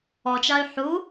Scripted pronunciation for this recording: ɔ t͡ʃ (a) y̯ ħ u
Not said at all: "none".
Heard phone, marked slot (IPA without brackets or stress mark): a